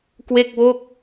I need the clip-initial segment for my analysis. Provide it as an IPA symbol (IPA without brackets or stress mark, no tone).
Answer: k